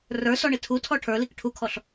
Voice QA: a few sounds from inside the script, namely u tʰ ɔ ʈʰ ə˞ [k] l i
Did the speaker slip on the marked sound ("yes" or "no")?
yes